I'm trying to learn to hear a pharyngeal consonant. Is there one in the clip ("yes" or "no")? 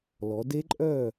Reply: no